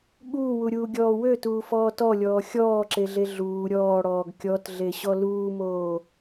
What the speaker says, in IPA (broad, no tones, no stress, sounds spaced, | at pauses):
ɠ uː w u ɾʲ uː ɡʲ ɔː w ø t uː f ɔː t ɔ lʲ ɔː xʲ ɔː ǁ e ɮ e ɮ uː ɾʲ ɔː ɽ ɔː ɡ kʲ ɔ t ɮ e ɕ ɔ l uː m oː